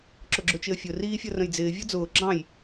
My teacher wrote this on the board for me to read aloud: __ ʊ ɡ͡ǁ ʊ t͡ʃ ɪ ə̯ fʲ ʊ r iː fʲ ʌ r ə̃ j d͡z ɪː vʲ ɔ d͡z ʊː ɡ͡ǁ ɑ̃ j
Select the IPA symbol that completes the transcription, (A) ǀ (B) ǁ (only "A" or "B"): B